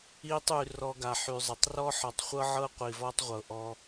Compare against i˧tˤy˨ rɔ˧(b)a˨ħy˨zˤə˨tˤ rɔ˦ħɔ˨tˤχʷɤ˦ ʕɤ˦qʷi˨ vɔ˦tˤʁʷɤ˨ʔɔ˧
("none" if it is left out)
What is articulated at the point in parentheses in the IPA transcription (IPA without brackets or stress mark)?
ɡ